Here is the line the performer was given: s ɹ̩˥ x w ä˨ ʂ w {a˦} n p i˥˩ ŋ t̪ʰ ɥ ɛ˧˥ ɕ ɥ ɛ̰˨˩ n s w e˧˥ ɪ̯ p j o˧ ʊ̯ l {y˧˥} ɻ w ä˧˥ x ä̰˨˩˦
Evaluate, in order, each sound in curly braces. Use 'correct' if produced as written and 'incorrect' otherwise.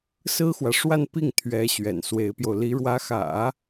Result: incorrect: a˥˧, incorrect: i˧˥

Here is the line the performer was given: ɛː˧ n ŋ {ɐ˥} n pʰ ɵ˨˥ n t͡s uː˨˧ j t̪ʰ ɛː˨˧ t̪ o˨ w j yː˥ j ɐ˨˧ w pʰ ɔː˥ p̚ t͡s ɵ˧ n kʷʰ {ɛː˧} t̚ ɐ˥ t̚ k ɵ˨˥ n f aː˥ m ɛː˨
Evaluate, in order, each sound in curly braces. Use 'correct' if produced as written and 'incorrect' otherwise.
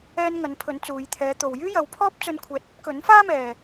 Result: incorrect: ɐ˨˥, incorrect: ɛː˨˥

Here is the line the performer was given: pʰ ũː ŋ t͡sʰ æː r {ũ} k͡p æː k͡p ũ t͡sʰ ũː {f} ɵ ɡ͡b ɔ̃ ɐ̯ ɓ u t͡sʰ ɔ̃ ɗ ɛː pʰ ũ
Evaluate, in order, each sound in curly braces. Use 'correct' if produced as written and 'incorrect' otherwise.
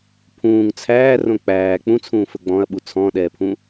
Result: incorrect: õ, correct

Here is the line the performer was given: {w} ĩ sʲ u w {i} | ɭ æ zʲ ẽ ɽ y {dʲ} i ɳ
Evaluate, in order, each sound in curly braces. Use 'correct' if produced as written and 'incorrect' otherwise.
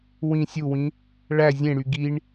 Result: correct, incorrect: ĩ, incorrect: ɡ

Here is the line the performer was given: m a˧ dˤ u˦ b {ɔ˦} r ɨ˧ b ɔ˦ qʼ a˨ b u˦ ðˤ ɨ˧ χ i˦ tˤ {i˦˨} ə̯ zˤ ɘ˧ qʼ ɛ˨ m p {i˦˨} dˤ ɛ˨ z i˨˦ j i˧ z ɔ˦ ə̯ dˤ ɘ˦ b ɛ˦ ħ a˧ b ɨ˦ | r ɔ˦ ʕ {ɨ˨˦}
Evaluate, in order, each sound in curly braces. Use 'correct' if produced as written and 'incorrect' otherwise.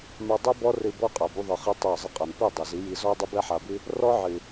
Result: correct, correct, correct, incorrect: ɨ˨

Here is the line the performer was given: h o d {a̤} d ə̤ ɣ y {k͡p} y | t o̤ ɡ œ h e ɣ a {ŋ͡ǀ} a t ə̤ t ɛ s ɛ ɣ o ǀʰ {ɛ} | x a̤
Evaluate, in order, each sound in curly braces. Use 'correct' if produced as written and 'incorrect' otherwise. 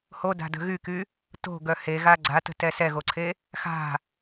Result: correct, incorrect: k, incorrect: ɡ͡ǀ, incorrect: e

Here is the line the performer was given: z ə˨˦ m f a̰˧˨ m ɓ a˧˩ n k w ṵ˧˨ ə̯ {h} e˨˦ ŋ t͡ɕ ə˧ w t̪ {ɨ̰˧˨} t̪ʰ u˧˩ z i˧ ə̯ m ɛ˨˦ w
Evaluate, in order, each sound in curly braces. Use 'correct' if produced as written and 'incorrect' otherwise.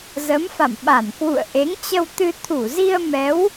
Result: incorrect: ʔ, incorrect: ɨ˧

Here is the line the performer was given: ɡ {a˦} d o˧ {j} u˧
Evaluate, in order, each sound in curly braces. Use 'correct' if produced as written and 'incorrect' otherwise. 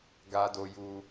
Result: correct, correct

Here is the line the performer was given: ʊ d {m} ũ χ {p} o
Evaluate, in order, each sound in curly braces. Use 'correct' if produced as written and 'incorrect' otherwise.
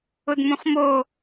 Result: correct, incorrect: m

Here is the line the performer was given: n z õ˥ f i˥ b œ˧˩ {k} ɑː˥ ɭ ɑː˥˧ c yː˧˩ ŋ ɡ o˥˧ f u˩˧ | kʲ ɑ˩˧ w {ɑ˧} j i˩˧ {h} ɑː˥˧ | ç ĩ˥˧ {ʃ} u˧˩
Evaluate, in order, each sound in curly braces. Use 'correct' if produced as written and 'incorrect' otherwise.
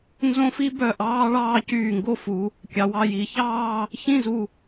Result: incorrect: ʔ, correct, incorrect: ç, incorrect: z

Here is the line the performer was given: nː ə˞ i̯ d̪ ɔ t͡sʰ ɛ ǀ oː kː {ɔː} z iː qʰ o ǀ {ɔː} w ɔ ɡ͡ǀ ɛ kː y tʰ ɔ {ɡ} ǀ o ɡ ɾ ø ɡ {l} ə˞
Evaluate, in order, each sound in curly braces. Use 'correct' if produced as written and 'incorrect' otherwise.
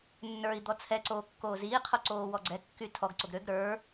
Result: incorrect: oː, incorrect: oː, correct, incorrect: ɾ

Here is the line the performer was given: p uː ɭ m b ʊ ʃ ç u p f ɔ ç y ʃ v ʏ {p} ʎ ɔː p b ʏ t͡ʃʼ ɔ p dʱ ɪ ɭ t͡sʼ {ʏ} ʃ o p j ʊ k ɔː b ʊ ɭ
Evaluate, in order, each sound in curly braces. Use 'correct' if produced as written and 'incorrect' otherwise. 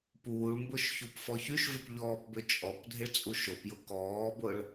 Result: correct, incorrect: u

